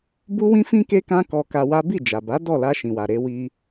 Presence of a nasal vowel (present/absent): present